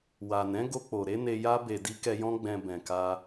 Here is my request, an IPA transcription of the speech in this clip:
w a˨ n ɛ̃˨˦ ɡ o˧ k͡p o˨ ɾ e˨˦ n e˧ j a˦ b e˧ d i˦ k ɛ˧ j ɔ̃˦ ɡ͡b ɛ̃˧ b ɛ̃˨ k a˧

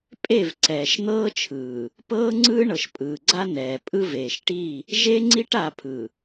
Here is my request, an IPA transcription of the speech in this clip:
pʼ e˦˨ v ǀ ɛː˨ ʃ n̪ ɤː˦ t͡ʃʰ ɯː˨ | p ɤː˦ ŋ͡ǀ ɯː˦ ɳ ɤ˨ ʃ pʼ ɯː˨ ɡ͡ǀ a˦ n ɛː˨ pʼ ɯ˦ v eː˨ ʃ ʈ i˦˨ | ʒ e˦ ŋ͡ǀ i˦ ʈ a˦˨ pʰ ɯ˨

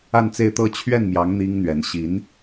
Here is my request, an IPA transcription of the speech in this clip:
a˥˧ n t͡s e˥˧ ɪ̯ t̪ ɤ˥˧ t͡ɕʰ ɥ ɛ˥˩ n m j ɑ˧˥ ŋ n̪ i˥ ŋ n̪ ɥ ɛ˧˥ n ɕ i˧˥ n

